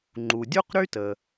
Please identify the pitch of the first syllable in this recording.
low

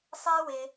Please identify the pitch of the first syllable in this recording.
high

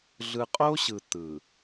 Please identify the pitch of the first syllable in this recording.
low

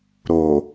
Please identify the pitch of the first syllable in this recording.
low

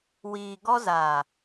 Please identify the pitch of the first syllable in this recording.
low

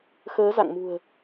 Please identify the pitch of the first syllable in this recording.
rising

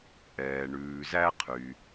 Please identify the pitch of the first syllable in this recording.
low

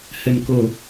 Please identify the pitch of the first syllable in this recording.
low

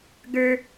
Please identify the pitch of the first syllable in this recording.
high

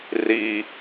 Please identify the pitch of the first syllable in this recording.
low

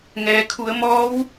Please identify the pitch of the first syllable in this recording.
low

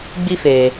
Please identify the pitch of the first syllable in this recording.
high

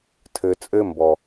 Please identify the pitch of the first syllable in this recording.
low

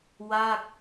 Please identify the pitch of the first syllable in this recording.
falling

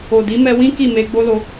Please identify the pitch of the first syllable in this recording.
low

